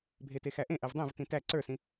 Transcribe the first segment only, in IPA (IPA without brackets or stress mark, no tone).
bʱ